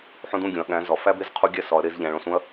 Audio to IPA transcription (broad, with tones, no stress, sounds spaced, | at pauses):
ħ õ˦ d ũ˥˩ ɡʲ õ˩˧ ɐ̯ ɠ æ̃˨˥ z ɒ˩˧ f æ˦ b e˥˩ z qʰ u˦ ɡʲ æ˥˩ s ɒ˩˧ ɐ̯ ɾ e˩˧ z ʎ æ̃˩˧ ɭ õ˥˩ s ũ˦ ɐ̯